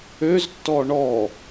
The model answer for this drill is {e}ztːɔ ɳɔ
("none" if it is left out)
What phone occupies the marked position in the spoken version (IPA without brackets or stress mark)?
ø